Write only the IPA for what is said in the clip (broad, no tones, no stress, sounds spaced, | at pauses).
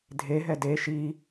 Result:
dʱ e ɦ ɛ d e ʃ i